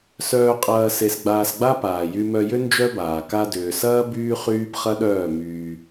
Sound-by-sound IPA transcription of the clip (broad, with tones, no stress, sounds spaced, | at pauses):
s œː˧ qʼ ɐː˧ s e˧ s ɡ͡b aː˧ s ɡ͡b a˦ p aː˨ j y˧ m œ˧ j ʏ˦ n d͡ʒ œ˦ b aː˨ k a˧ d ʏː˨ s ɐː˦ b yː˦ χ yː˦ b χ ɐ˦ ɗ œː˦˨ m yː˧